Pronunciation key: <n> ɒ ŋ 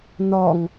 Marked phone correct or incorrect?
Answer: correct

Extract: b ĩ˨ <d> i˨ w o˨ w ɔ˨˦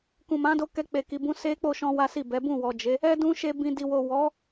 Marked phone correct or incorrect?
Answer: correct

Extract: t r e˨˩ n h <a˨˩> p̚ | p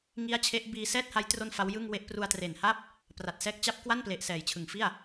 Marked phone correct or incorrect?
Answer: incorrect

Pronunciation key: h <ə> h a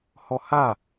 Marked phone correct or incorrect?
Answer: incorrect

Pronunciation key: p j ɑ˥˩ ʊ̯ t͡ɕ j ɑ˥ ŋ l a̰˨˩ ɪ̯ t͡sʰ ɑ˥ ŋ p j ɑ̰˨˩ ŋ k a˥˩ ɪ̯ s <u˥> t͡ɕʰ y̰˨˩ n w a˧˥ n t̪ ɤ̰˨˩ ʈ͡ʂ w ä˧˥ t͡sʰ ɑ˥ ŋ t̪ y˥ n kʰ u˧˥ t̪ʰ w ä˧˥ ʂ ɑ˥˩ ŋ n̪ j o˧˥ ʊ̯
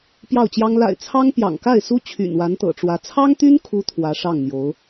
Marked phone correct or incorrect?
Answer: correct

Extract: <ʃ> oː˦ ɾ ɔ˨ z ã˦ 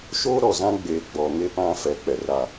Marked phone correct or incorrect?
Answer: correct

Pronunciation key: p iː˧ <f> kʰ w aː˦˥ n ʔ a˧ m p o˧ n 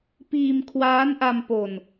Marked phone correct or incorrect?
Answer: incorrect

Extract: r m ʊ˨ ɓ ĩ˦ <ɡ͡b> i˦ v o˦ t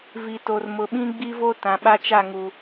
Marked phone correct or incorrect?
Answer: correct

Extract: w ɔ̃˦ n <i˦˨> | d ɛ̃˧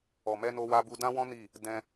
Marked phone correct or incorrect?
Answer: correct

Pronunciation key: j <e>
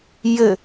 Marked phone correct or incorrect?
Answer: incorrect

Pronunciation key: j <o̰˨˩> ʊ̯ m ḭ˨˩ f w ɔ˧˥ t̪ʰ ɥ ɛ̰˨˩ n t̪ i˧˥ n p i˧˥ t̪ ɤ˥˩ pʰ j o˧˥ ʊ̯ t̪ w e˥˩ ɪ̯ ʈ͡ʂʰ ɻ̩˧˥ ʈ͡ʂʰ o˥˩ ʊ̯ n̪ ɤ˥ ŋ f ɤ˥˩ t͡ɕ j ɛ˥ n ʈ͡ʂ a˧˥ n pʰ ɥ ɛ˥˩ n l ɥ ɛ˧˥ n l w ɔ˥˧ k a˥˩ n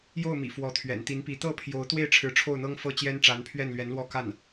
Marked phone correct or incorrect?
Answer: incorrect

